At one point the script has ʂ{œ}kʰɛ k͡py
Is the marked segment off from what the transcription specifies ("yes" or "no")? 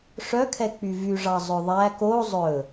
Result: no